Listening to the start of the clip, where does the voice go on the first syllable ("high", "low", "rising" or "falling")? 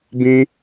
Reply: high